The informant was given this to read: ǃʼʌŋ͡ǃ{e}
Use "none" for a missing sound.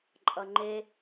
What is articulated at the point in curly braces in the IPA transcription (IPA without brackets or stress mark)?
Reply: e